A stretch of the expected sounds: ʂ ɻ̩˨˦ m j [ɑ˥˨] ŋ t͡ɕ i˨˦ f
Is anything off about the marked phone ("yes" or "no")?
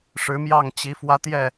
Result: no